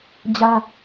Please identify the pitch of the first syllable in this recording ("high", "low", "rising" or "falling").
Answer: high